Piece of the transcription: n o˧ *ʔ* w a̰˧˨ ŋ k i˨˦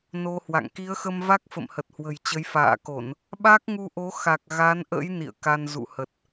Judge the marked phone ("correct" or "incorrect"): incorrect